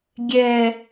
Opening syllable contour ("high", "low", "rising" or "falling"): low